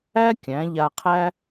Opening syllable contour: high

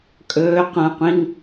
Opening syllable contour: rising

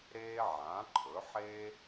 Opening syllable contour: high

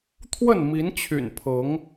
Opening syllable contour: falling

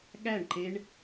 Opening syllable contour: falling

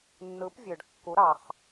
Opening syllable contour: rising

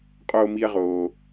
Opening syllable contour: low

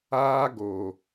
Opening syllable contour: high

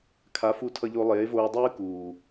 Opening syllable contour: rising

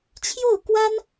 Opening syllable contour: falling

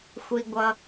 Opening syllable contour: low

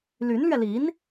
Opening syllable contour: rising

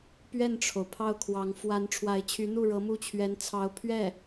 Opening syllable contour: falling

